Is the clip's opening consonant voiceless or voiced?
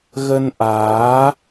voiced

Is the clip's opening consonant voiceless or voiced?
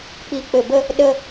voiceless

